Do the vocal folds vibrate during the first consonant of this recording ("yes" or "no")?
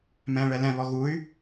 yes